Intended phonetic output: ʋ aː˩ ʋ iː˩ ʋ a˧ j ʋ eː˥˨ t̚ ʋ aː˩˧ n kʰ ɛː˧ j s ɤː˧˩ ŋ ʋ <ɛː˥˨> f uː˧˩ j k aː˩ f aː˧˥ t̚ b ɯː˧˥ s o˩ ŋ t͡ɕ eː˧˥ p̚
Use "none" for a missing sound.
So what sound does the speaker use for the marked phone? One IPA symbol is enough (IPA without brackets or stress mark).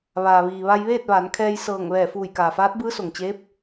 ɛː˧˩